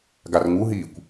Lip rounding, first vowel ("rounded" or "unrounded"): unrounded